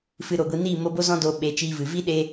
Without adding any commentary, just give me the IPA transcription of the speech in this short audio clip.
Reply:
fɨ˧ɾo˨ɡʷi˧ niː˦˨ mo˧bo˦ zɔ̃˦doː˧ ɓe˨˦t͡ʃiː˧vɨ˨ vi˦ ɗe˦

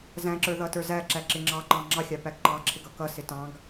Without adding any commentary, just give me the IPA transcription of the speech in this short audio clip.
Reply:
zæ̃ǁə˞ ðʌtə˞zæǁæ ǁɪŋ͡ǁɑǃɑ̃ ŋ͡ǁɑxʲɑ pæɡǃɑǁʰɪɡ ʌkʌsɪ tɑ̃ɡ

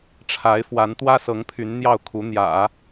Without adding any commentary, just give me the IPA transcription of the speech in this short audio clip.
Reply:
ʈ͡ʂʰa˧˥ɪ̯fwa˧˥n t̪wä˥sɤ˧˥ŋ pʰy˧˥n n̪jɑ˥˩ʊ̯kʰu˧˥n̪jä̰˨˩˦

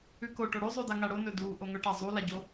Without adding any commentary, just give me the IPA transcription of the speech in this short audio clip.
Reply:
ʉko ʈoɽʉzˤʉda ŋaɽonɵ du ʔoŋɵʈa zˤulaɟo

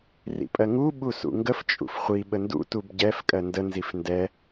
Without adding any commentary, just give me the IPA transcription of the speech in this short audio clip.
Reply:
rḭpʼɜŋu ɓusṵŋɡəf t͡ʃʼṵfχʷi ɓəndṵ tubɟɛf kʼɜndə nzifndɛ

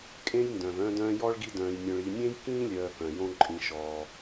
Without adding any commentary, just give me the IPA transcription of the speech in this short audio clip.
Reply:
kʼẽ˦jndœ̃˩v œ̃˦dœ̃˦jɔ˥ɭ ɡi˦dœ̃ː˨jnʲœ̃˨ɭ i˨nʲẽ˥jkĩː˥lʲœː˨ kœ̃˩jõ˦ ǃʼĩ˨ʃɔː˨

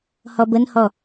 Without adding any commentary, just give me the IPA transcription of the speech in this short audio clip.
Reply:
hɔbənhɔ

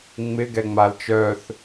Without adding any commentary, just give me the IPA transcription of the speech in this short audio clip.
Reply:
ŋ͡mɪɡɛ ŋ͡malt͡ʃœθ

